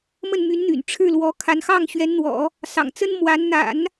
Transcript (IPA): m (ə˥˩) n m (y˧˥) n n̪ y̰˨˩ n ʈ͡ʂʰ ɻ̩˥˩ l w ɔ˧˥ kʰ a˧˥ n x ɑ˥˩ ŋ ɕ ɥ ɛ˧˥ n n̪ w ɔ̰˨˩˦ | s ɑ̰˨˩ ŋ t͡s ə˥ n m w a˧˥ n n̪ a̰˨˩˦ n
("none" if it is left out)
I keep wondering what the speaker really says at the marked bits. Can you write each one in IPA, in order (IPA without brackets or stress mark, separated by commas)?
ə˥˩, y˧˥